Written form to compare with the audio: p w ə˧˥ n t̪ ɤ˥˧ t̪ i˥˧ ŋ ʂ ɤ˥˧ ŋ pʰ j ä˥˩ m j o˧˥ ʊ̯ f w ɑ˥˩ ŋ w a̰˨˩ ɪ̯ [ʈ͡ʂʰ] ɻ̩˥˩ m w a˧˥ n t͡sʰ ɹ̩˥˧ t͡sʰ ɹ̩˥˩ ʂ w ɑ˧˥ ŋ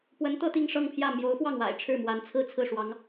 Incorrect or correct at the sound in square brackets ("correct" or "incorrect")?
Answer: correct